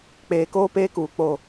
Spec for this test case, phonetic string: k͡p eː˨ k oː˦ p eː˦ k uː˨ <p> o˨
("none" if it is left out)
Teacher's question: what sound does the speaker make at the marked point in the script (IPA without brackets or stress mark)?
k͡p